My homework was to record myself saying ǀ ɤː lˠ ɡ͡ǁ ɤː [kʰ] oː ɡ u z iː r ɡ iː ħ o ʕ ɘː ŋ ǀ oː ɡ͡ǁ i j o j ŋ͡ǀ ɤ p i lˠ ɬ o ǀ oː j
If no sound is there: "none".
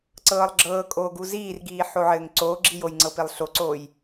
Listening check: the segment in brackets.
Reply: kʼ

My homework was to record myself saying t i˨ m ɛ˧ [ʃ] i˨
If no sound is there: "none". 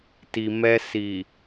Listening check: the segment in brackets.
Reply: s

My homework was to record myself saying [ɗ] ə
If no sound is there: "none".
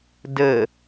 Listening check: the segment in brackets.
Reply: d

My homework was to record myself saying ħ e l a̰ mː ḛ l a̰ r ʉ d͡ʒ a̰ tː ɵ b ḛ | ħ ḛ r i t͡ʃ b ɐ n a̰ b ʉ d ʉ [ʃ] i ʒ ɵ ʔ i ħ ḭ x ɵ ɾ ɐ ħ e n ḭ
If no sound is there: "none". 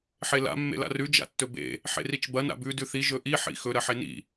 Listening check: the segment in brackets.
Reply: θ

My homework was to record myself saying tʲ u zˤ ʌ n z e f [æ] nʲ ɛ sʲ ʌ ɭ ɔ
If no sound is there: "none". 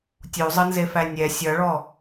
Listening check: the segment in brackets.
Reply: æ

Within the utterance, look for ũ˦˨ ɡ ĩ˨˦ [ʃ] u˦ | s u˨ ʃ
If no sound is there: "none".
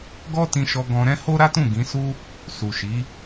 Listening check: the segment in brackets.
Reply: s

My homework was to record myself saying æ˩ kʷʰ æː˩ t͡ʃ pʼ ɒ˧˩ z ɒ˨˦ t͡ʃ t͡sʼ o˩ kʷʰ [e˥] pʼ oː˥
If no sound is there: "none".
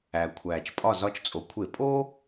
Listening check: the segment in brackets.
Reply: e˧˩˧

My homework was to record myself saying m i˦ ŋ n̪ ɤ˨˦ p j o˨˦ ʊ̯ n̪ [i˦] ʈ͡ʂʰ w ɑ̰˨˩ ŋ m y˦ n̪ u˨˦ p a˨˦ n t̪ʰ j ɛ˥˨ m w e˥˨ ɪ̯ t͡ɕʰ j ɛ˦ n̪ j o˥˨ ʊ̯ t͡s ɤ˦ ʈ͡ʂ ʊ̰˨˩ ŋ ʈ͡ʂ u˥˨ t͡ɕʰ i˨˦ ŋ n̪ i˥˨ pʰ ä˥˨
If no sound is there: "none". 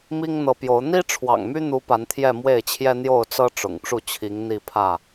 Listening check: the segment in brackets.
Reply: i˦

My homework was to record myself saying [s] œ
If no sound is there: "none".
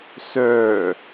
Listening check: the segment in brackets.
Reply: s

